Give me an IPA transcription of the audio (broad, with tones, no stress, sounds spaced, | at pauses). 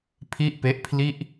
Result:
pʰ i˥˩ ʔ p e˦˥ ʔ pʰ l i˥˩ ʔ